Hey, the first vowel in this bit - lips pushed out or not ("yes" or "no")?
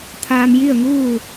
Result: no